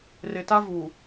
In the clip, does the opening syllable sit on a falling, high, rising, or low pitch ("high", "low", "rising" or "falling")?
low